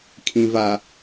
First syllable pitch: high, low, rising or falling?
low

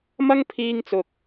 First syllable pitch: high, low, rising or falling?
high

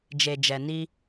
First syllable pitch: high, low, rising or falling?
low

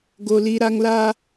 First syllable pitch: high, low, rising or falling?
high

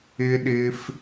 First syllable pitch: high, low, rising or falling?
high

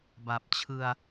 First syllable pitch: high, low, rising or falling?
low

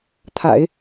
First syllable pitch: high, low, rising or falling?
low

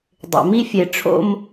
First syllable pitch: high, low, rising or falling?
low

